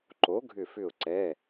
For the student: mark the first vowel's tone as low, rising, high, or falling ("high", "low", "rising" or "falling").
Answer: rising